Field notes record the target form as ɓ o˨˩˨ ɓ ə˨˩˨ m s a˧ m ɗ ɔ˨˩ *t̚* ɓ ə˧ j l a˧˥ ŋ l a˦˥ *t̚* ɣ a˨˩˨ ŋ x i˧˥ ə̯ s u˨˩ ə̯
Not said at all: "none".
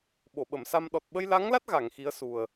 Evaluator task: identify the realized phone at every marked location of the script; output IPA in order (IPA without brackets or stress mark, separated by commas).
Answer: t̚, t̚